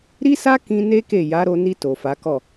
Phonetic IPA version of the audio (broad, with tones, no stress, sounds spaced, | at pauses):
ɾ i˦ s a˦ k ĩ˧ n e˦ k e˦˨ j a˨˦ ɾ o˧ n i˧ t o˨ f a˨˦ k ɔ˦˨